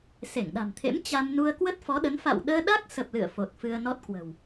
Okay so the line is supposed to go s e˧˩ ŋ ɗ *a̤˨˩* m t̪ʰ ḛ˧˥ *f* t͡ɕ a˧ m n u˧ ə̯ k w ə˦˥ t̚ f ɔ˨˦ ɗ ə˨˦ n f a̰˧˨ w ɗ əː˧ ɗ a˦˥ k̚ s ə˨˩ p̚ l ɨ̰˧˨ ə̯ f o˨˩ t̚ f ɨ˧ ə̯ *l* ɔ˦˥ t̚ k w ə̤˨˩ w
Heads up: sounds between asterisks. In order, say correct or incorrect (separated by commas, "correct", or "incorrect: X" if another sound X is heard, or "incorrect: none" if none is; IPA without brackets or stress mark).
correct, incorrect: m, incorrect: n